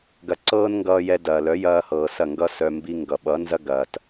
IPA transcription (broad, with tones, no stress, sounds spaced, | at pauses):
ɡ ɐ˨ ǀ ɤː˦ n ŋ ɡ ʌː˧ j ɛ˧ d ɐː˨ l œ˨˦ j ɐː˧ h ɤː˨ s ɐ˦˨ ŋ ɡ ʌ˦ s œ˧ m b i˦ ŋ ɡ ʌ˨ ɓ ʌ˨˦ n z ɐ˦ ɡ ɐː˨ t